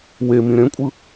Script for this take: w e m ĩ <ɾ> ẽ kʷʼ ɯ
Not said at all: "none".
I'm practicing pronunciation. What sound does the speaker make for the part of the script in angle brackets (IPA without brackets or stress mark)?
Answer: ɾ